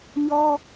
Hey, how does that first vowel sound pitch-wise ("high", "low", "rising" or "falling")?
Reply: high